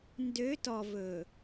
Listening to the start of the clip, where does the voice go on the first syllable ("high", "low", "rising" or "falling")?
rising